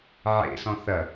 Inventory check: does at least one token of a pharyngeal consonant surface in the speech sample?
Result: yes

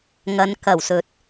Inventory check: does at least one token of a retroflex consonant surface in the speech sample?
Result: no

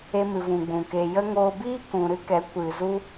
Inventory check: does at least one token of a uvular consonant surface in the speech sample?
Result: no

